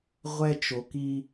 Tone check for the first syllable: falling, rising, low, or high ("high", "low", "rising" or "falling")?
high